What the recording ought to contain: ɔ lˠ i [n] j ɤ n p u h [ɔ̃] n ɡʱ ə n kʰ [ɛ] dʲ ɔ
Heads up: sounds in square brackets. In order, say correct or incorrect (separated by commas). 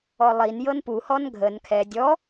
correct, incorrect, correct